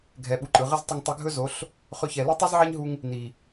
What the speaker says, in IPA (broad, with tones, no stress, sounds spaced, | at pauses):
ɡʱ ɛ˨ ɓ u˨ ǃʼ ɯ˨ ʁ ɘ˦ z tˤ ɵ˧ ŋ tˤ ɛ˧ ɡʱ ɵ˦ z o˨˦ ɬ | χ ɵ˧ ç ɛ˨ l u˦ tˤ ɯ˦ z ʕ ɛ˦ ɲ ɦ u˧ ŋ | n i˨